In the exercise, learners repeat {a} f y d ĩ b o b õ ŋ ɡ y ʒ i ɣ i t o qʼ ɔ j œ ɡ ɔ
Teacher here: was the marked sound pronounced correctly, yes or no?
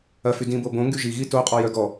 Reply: no